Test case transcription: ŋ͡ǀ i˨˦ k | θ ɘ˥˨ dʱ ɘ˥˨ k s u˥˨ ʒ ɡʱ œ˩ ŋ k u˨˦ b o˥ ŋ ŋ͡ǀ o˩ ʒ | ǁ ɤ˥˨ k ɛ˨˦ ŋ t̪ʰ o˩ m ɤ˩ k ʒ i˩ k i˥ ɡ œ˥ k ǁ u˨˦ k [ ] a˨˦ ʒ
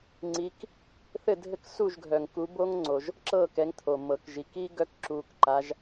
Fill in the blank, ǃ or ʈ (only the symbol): ǃ